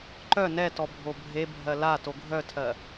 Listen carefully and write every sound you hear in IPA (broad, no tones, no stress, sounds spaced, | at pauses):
ǃ œ n ɛ t ɔ bʱ o bʱ e bʱ ɜ l a t o ɡʱ œ tʰ ɜ